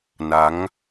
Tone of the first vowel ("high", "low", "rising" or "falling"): rising